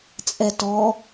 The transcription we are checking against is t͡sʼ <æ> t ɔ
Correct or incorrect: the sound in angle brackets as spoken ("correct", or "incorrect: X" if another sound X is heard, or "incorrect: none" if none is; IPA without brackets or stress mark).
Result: incorrect: ɛ